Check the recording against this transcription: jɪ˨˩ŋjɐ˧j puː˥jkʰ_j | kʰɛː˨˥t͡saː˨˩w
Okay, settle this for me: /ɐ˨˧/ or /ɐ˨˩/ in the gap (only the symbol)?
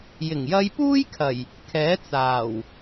ɐ˨˩